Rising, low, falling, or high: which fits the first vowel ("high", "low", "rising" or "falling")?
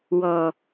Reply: low